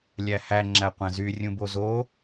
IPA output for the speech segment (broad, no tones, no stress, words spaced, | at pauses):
lʲæhæ ŋ͡ǁæqʷæ̃zy rʲũbozo